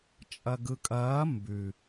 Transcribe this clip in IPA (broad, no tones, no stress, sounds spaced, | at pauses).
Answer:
t͡ʃʼ ɐ ɡ ɯ kʼ ɐː m b ʉ